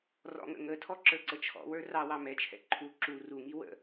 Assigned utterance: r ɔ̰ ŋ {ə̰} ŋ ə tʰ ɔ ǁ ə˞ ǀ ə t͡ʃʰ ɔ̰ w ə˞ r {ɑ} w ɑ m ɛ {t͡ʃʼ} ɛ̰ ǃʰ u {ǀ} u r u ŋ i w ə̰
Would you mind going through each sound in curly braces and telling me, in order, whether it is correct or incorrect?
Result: correct, correct, incorrect, incorrect

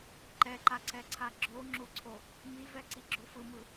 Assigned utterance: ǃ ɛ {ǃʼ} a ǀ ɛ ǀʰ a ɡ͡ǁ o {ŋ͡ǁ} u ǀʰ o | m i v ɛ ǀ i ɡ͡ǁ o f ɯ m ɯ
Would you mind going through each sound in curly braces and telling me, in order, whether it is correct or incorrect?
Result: incorrect, correct

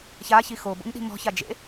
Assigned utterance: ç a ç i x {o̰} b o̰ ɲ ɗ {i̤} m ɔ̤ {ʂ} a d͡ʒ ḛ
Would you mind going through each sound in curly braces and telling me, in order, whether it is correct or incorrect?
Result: incorrect, correct, incorrect

